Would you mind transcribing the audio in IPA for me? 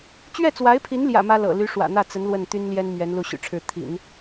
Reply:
t͡ɕ ɥ ɛ˥˩ t͡s w a˧˥ ɪ̯ pʰ i˧˥ n l j ä̰˨˩ m ä˥ l ɤ̰˨˩ l y˧˥ ʂ w ä̰˨˩ n̪ ä˥˩ t͡s ə˧˥ n l w ə˥˩ n t̪ y˥ n l j ɛ˥ n m ɥ ɛ˧˥ n l u˥˩ ɕ y̰˨˩ ʈ͡ʂʰ ɻ̩˥˩ t̪ʰ ḭ˨˩˦ n

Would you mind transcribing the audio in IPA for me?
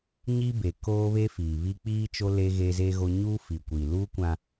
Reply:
ɲ i˦ b e˨ k oː˦ β e˦ f iː˨ β i˦ k͡p iː˦ t͡ʃ o˦ l eː˦ ɣ e˦ z e˦ ɣ o˦ ɲ uː˦ f i˨ kʷ iː˨ l uː˦ kʷ ã˦

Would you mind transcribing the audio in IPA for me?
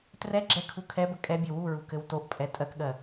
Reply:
t r ɛ ɡ͡ǁ ɛ kʰ u kʰ ɛ b ə kʼ ɛ bʲ ɘ w u ɹ u k ɘ w t o ʔ pʼ ɛ tʼ ɜ k ɠ ɜ

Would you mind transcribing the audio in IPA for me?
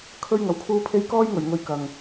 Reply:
kʰ ɵ˧ ɥ ŋ ɐ˨˩ w kʰ uː˧ pʰ e˧ j k ɔː˥ j ŋ ɵ˨˩ ɥ ŋ ɵ˧ ɥ k ɐ˨ ŋ

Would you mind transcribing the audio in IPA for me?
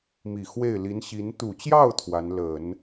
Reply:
m i˨˩ x w e˥˩ ɪ̯ l i˧˥ n ɕ i˧˥ n t̪ u˨˩ t͡ɕ j ɑ˥˩ ʊ̯ t̪ʰ w a˧˥ n l ə˨˩˦ n

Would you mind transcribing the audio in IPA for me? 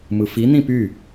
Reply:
m ɯ f i n̪ ĩ p y

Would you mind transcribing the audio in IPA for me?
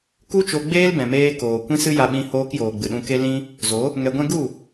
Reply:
k u˦ t͡ʃ o˧ ɡ͡b eː˦ l b ɛ̃˨ m eː˧ k oː˨ kʷ ĩ˦ s ɨ˦ j a˧ ɓ ĩ˧ h oː˧ k j oː˨ ɡ͡b ɨ˨ ɗ ũ˧ k e˦ l ĩ˦ | z o˨˦ | ŋ ɛ˧ ɡʷ ɛ̃˦ ɡ u˦˨

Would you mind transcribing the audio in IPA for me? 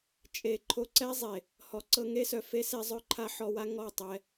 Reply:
t͡ʃʼ e˨ ǃʰ o˧ ǀ ɛ˦ zˤ e˨ | h ɔ˨ ǀ ɤ˧ ŋ e˦ s œ˨ f e˦ s e˦ zˤ œ˦ ǃʰ a˦ ħ ɔ˧ w a˦ ŋ ɔ˦˨ tˤ ɛ˧

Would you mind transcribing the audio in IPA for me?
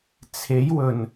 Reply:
t͡sʰ e˨˥ j w ɵ˨˩ n

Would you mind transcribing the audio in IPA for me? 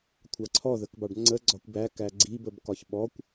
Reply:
kʷʰ ɑ ǀʰ ɔ ð ə k b ɑ ɖ ŋ͡ǀ ə ɡ͡ǀ ɒ kʷ b æ k æ ɡ͡ǀ i b ə b k ɒ ç ɓ ɔ kʷ

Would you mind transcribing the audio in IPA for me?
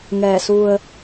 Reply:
ŋ ɛː˧˩ s u˧ ə̯

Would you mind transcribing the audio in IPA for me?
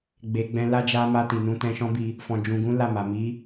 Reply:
ɡ͡b e˨ ɡ͡b ɛ̃˧ l a˧ d͡ʒ a˧ m a˧ t i˨ n ũ˨˦ t ɛ̃˧ ʃ ɔ̃˦ b i˧ | f ɔ̃˨ d͡ʒ ũ˨ ɡ ũ˨˦ l a˦˨ m a˨ m i˨˦

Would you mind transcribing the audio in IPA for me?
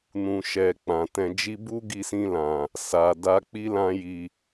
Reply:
n ũ˨ ʃ ɛ˨ k͡p ã˨ t ɛ̃˧ d͡ʒ i˦ b u˦ ɡ i˧ s ĩ˧ l ã˨ | s a˨ d a˧ k͡p i˦ l ã˦ j i˧

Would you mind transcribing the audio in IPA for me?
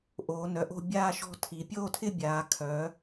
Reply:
ʔ oː˩˧ n œ˩˧ ʔ o̤˥˧ bʲ aː˥˧ ʃ ɔ̤˥˧ tʰ i˩˧ pʲ oː˥˧ tʰ ɪ˥˧ bʲ aː˩˧ kʰ œ˩˧

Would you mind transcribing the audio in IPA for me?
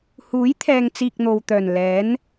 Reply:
h uː˨˥ j t̪ʰ ɛː˨ ŋ t͡s iː˧ k̚ n̪ o˨ w t̪ œː˨˩ n l ɛː˨˥ n

